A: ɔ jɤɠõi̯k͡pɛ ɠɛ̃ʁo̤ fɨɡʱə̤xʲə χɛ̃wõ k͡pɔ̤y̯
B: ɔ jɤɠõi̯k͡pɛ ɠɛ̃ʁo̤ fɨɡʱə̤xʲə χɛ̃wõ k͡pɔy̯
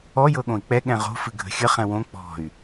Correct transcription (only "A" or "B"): A